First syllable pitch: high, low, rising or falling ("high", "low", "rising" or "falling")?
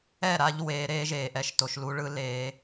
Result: falling